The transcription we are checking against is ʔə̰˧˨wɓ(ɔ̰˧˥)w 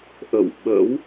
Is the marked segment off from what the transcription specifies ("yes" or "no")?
yes